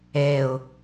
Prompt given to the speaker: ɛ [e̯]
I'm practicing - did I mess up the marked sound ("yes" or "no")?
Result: yes